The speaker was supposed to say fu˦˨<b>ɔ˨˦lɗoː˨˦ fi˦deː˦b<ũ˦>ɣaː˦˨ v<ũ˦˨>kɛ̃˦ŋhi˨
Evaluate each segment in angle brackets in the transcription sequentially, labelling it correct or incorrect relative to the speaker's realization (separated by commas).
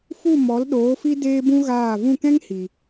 incorrect, correct, correct